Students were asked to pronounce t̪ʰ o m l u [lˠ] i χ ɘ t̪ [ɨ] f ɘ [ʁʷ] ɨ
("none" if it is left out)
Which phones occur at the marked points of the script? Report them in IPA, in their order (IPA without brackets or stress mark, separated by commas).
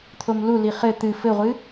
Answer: l, ɨ, ʁʷ